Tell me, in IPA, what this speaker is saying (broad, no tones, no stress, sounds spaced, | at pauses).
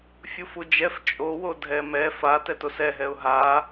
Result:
fʲ u f u d͡ʒ ɛ f t͡ʃʼ o w o dʱ ɛ m ɛ f a t ɛ t o s ɛ ɦ ɛ ʊ̯ ɦ a